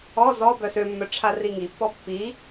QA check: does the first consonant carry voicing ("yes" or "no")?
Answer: yes